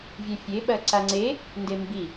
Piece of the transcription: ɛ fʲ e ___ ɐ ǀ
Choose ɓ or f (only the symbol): ɓ